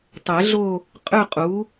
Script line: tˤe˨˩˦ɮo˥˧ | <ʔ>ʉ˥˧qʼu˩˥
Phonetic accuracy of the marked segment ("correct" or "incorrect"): incorrect